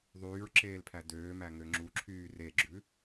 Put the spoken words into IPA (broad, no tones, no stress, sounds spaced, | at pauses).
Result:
ðˤ yː ɹ ǁ eː l pʰ æ d øː m æ ŋ ø ŋ͡ǁ u ǁʰ yː r e ɡ͡ǁ ʉ